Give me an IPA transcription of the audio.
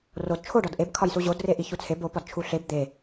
r o d t͡ʃʰ o ɖ ɒ d ʔ e b kʰ ɒ j s u ʑ o d r e ʔ i ç u t͡sʰ e b o p ɒ d t͡ʃʰ u ɬ e b d̪ e

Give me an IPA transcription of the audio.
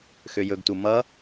x ø j ɵ ɡ t u m ʌ

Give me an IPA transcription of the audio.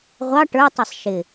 ʁʷ ɑ ʈ ə˞ tˤ ɛ sˤ ʃ ɪ

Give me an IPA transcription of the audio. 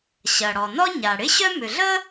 ɕ ɐ˩ ɽ ɔ˩ n ɔ˥ ɲ a˩ ɽ ɪ˥ ɕ œ˥ m ʏ˩ ɮ ə˥

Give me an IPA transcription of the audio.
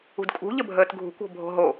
ṳ d kʼ ṳ ʎ ə bʱ əː t ɡʱ ṳ kʷ o̤ bʱ o̤ ɦ o

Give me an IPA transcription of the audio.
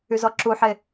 y z ɔ ǁ u ħ e

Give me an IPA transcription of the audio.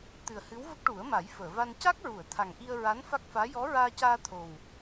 t̪ ɨ˨˩ ə̯ h ɨ˧˥ w v ə˦˥ k̚ ʈ u˨˩˦ ə̯ m a˨˩˦ j f əː˨˩˨ v a˧ n c a˦˥ k̚ ɹ u˨˩˨ ə̯ t̪ʰ a˨˩ ŋ ʔ i˧ ə̯ ɹ a˧˥ n f a˦˥ k̚ f aː˧˥ j ɔ˧˥ ɹ aː˧ c aː˧ t̪ʰ o˨˩ w

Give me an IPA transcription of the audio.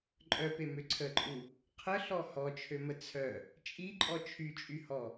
ǃʼ œ p e m ø ǀʰ ə ǃʼ u | qʰ ə ɬ ɔ h ɔ t͡ʃʰ ø m ə t͡sʰ œ | t͡ʃʼ i ǃʼ ɔ t͡ʃʰ y t͡ʃʼ y h ɔ

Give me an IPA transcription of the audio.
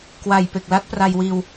k w a˨˩ j p e˨˩ k̚ l a˦˥ t̚ p r a˧ j w iː˧ w

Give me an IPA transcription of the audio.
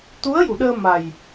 t̪ u˧˥ ə̯ j u˨˩˨ ɗ əː˧ m a˨˩ j

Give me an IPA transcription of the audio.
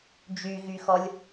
d͡ʒ y ɣ y x ɔ lʲ

